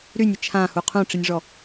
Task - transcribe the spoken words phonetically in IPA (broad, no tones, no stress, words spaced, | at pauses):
ɾynʲɪ t͡ʃʰãhu qʰũʈ͡ʂinʲʐɔ